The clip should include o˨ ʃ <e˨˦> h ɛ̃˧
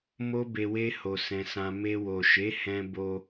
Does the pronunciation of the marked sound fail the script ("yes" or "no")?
no